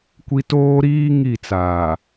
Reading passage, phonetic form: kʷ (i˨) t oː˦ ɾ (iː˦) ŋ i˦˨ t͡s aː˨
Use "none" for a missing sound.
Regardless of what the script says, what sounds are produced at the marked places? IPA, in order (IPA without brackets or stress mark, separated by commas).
i˦, iː˦